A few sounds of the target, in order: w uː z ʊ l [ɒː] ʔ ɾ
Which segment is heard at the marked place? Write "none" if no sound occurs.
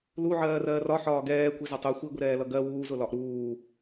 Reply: ɒ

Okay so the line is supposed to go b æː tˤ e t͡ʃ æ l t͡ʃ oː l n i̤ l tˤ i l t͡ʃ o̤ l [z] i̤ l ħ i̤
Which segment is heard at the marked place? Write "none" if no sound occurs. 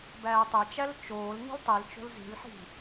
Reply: z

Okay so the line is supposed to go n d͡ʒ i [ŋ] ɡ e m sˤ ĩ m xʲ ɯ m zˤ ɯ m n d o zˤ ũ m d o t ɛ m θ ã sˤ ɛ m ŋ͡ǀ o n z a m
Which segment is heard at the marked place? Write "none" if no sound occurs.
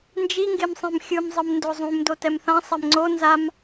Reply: ŋ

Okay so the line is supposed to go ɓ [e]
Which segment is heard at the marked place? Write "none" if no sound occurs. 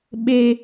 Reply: e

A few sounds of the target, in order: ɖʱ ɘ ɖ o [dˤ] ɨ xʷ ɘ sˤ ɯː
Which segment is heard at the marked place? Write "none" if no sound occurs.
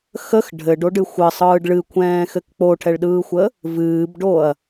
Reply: ɖ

